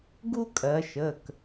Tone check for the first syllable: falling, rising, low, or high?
high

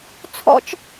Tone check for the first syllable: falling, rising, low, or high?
high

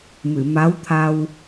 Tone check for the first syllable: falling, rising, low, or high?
low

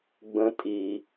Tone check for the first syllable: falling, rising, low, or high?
low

